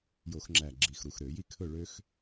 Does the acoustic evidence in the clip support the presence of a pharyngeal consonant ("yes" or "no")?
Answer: no